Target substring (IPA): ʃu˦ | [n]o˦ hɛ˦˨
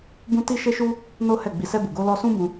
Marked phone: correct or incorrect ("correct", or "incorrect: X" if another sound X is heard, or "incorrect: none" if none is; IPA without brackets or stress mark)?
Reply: correct